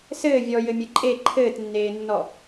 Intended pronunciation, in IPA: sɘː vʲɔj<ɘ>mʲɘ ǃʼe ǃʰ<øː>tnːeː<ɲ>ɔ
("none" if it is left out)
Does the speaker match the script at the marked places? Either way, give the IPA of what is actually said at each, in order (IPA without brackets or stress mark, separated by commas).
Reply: ɘ, ɘː, nː